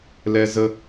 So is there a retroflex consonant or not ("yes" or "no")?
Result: no